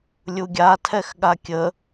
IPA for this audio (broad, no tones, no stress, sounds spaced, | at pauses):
lʲ u ɡʲ a tʰ ɛ x ɠ a kʲ ə